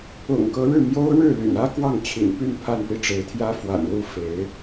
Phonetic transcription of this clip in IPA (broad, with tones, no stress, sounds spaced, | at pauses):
ʊ̰˨˩ ŋ k ɤ˧˥ ɻ ɻ̩˥˩ m j o˥ ʊ̯ ɻ ɻ̩˥˩ l y̰˨˩ n ä˥ k w ɑ˥˩ ŋ t͡ɕʰ ḭ˨˩ n p y˥˧ n pʰ a˥˧ n p i˥˩ ʈ͡ʂ e˧˥ ɪ̯ t̪ʰ j ä˥ f w a̰˨˩ n l u˥˩ f e˧˥ ɪ̯